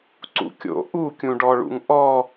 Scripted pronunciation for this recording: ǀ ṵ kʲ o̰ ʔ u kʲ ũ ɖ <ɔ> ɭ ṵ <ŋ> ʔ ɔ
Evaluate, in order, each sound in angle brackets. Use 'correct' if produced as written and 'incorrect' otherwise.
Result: correct, correct

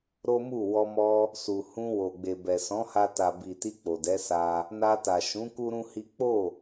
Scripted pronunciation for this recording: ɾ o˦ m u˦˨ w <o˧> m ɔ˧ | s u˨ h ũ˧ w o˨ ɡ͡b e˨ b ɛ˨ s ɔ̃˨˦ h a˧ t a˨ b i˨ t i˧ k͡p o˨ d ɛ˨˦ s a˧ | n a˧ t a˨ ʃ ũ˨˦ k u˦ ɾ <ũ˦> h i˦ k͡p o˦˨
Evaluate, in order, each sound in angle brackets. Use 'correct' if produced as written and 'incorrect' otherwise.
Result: incorrect: ɔ˧, correct

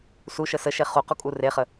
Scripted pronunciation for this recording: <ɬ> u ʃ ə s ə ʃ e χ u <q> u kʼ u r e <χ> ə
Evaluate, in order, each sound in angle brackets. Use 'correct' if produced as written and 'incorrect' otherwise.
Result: incorrect: s, correct, correct

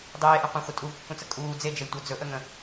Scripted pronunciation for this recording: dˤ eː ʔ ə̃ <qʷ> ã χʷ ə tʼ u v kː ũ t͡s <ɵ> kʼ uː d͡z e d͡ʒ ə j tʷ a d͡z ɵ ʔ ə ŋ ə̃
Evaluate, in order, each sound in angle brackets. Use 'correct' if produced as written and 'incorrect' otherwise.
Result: correct, incorrect: ə

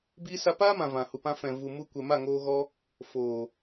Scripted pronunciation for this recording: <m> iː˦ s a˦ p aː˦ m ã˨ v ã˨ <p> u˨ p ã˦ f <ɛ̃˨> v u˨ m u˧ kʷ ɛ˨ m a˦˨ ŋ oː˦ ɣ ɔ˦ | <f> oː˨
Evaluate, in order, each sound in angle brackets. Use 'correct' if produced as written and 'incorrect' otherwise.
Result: incorrect: b, incorrect: h, correct, correct

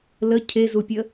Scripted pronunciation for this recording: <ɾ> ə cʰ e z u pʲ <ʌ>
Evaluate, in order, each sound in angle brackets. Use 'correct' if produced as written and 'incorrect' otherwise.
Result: incorrect: l, incorrect: ə

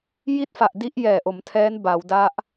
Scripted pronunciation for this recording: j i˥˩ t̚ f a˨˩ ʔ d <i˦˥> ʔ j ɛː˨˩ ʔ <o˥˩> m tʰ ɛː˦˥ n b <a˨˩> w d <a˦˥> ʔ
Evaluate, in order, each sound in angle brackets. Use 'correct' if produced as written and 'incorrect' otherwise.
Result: correct, incorrect: o˩˦, incorrect: a˩˦, correct

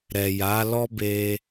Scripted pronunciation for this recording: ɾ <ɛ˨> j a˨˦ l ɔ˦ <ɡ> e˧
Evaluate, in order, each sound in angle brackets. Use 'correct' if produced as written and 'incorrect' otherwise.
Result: correct, incorrect: b

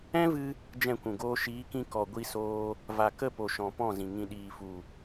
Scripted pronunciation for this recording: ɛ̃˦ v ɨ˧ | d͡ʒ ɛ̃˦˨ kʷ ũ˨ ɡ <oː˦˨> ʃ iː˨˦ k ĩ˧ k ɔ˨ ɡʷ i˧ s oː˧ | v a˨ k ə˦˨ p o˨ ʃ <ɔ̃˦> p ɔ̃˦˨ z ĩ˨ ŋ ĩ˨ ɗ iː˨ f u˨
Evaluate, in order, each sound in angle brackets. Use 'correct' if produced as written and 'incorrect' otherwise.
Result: incorrect: oː˦, incorrect: ɔ̃˨

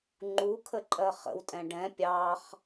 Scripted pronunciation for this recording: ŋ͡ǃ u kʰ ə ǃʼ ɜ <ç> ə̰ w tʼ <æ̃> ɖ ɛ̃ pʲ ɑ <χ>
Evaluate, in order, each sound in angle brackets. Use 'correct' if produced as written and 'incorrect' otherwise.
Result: incorrect: χ, incorrect: ɛ̃, correct

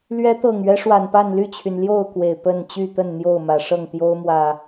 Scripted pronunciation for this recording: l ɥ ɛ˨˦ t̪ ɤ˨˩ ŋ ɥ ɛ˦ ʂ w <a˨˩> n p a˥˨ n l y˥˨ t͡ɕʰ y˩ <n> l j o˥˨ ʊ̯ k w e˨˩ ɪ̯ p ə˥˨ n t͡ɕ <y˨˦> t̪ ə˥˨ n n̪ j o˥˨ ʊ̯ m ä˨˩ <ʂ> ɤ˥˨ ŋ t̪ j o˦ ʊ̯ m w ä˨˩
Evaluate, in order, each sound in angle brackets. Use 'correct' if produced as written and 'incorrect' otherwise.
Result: correct, correct, incorrect: y˥˨, correct

